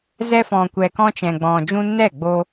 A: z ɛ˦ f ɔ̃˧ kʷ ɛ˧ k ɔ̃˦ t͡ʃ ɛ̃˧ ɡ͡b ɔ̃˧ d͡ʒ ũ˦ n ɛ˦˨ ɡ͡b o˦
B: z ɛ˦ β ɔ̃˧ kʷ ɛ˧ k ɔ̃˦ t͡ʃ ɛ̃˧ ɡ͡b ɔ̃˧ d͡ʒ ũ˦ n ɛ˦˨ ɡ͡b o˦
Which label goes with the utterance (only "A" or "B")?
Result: A